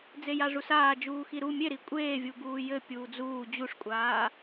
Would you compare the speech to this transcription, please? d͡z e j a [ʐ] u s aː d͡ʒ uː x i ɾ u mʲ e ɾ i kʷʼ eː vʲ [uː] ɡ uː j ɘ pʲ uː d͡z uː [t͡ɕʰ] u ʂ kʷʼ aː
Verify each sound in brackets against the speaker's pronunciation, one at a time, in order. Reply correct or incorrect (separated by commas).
correct, incorrect, incorrect